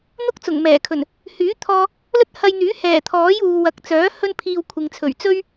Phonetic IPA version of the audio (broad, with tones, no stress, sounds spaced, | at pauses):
n̪ ʊ˥ k̚ t͡s ʊ˨˩ ŋ m ɛː˨˩ kʰ ɵ˨˩ n | h yː˨˥ t̪ʰ ɔː˧ | l ɵ˥ t̚ h ɐ˧ j n̪ yː˨˥ h ɛː˨˩ t̪ʰ ɔː˨˥ j uː˨ w ɐ˨˥ k̚ t͡s œː˨˥ h ɵ˥ n pʰ iː˧ w kʷʰ ɪ˨ ŋ t͡sʰ ɵ˨˩ ɥ t͡s ɵ˥ ɥ